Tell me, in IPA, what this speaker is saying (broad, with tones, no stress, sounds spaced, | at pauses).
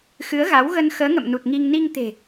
x ɨ˨˦ ə̯ ɣ a˨˦ w ɣ ə˧ n x əː˨˦ ŋ ə̰˧˨ m n u˨˩ t̚ ŋ i˧ ŋ n i˧ ŋ t̪ e̤˨˩